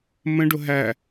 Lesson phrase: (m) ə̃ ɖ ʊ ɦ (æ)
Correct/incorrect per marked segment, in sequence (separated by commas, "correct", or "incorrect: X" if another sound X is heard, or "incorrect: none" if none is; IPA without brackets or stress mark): correct, correct